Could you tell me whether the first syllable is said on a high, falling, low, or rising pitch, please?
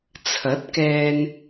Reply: rising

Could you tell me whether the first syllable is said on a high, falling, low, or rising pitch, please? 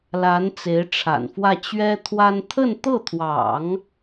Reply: rising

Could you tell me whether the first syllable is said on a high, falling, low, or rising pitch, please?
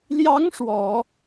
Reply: rising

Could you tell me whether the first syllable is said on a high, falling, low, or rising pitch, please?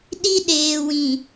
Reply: high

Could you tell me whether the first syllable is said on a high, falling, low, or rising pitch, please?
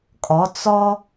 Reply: rising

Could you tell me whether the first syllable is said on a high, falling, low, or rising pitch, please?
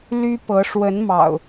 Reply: high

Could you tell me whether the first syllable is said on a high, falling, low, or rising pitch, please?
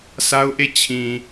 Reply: high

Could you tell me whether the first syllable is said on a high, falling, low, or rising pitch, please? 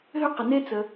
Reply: high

